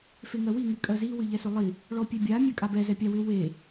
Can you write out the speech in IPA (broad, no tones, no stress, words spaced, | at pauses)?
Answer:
feŋɜwi ŋɨkʼɜzi wɨʎɛsʏlˠi | ɭɔpʲebʲa mʲɜkʼabɛ zɛpʲawʏ we